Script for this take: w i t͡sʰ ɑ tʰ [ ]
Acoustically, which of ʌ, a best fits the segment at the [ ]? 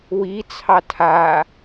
a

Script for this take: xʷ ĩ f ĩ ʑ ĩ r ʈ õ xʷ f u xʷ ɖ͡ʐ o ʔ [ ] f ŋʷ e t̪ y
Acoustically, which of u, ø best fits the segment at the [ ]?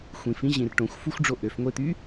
ø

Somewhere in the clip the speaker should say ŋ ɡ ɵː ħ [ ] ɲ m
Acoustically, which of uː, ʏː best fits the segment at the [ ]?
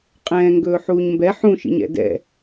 uː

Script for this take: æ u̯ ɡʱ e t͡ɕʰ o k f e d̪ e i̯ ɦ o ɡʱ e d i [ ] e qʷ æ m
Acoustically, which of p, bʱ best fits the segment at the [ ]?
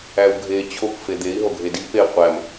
p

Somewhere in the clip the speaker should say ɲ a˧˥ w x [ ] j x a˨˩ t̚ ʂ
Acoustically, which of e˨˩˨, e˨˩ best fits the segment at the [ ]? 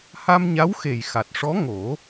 e˨˩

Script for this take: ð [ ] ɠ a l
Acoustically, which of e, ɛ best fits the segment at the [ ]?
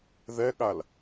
ɛ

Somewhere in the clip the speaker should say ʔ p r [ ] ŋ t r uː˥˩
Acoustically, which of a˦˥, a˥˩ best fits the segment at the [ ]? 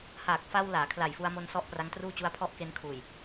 a˦˥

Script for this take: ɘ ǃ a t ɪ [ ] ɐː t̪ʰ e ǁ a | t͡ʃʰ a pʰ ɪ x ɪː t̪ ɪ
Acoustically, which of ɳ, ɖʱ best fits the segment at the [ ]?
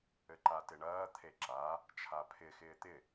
ɳ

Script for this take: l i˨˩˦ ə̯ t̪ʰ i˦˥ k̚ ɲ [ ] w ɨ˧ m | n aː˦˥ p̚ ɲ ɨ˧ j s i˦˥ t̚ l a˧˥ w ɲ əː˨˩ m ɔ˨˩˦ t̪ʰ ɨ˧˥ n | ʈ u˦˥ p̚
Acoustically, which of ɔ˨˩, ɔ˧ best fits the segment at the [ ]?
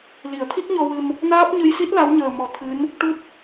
ɔ˧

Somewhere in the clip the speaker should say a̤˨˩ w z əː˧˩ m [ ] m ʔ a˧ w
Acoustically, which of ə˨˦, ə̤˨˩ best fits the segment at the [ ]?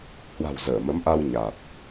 ə˨˦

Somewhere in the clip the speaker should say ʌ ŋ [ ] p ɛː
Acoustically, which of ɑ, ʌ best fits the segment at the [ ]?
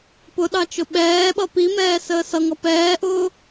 ʌ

